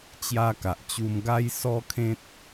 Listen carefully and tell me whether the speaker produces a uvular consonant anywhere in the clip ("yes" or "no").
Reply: no